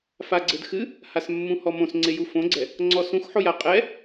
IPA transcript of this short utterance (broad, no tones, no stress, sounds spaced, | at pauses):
f a ɡ͡ǀ ɘ d x ɨ | h a s mː ũ h ɔ m õ s ŋ͡ǀ e j u f õ ɡ͡ǀ ɛ | ŋ͡ǀ ɔ s ũ x ħ o j a qʼ ɛ